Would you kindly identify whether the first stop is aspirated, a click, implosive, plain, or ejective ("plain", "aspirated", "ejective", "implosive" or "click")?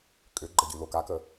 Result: ejective